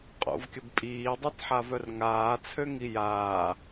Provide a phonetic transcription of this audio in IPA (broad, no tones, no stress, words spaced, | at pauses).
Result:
qʼo̰vkʲəb pʼiːdˤitħavœr ŋaːt͡sʰøŋi jaː